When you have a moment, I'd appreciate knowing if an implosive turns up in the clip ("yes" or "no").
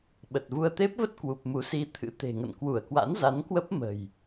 yes